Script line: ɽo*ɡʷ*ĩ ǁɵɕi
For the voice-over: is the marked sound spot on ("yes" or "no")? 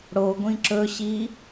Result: yes